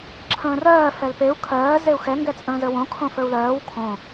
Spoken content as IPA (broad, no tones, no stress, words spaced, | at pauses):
ǁʰə̃ːrɜː fɛlpeu̯ kʰɜː zeu̯xɛ ŋɡɛt͡sʼə̃ːzəwõ kʰõfə˞u̯lɜːw kʰõ